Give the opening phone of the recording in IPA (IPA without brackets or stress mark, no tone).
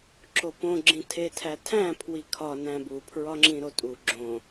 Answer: ǁ